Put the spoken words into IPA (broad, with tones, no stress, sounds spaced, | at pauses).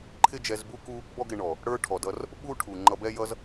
ǃʰ ɪ˦ d͡ʒ ɛ˧ z b u˦ k u˦ | b ɔ˦ ɡ ɪ˧ ɳ ɔ˨ | ɽ ə˞˦ ʈʰ ɔ˨ d ʌ˧ r | ɓ u˦ ʈʰ u˨ ŋ͡ǃ ʌ˧ b ɛ˦ j ʌ˦ z